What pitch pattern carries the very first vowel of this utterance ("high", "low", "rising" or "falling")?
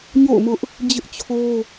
falling